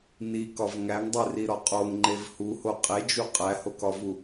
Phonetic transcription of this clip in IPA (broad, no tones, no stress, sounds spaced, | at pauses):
n i k ɒ v ŋ æ ŋ dˤ e r i ɾ ɒ qʼ o ŋ ŋ͡ǃ e v h u h o qʼ e d͡ʒ u qʼ æ h o k ɒ v u